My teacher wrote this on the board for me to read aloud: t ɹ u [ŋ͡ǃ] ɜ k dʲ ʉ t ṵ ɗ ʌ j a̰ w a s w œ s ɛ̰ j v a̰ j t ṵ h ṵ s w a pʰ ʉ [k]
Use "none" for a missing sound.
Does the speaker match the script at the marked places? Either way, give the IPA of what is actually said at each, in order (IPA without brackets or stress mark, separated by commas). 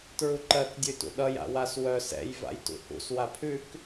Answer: ǃ, k